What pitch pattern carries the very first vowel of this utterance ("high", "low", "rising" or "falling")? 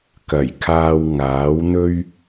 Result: low